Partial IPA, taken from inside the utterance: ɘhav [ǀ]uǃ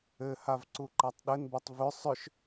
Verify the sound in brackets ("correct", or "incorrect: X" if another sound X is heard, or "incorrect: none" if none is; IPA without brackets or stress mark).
correct